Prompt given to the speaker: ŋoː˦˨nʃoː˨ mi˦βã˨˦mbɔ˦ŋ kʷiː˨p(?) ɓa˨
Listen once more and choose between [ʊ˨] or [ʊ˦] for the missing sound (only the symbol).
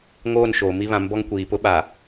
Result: ʊ˦